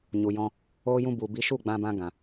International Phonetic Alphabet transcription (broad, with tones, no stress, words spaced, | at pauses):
ɲu˨jɔ̃˧ | oː˧jũ˧ bu˨bi˨˦ ʃu˦˨ɡ͡bã˧bã˧ ɡã˨